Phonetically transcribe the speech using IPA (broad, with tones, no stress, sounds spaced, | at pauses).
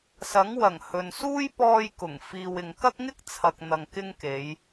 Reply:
s ɐ˨˥ ŋ w ɐ˨˩ ŋ h ɵ˨ n s uː˥ j p ɔː˧ j k ʊ˨˩ ŋ f iː˨ w ɪ˨ ŋ k ɐ˥ k̚ ŋ ɪ˥ k̚ t͡sʰ ɐ˨ k̚ n̪ ɐ˨ ŋ k ɪ˧ ŋ k e˨˧ j